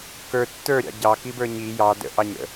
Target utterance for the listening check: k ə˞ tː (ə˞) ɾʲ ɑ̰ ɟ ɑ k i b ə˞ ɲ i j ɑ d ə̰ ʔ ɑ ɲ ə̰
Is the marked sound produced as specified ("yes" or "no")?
yes